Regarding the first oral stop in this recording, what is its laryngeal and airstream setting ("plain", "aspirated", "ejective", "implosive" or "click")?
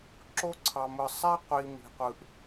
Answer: click